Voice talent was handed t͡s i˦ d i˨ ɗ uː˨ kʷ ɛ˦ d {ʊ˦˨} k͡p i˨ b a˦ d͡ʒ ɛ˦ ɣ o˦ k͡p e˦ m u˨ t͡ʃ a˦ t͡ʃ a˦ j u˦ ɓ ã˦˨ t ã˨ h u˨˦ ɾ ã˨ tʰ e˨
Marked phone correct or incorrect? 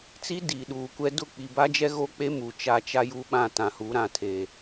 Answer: correct